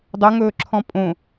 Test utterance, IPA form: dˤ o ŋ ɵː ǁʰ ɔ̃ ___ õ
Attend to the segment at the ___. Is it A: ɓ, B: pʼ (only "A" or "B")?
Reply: B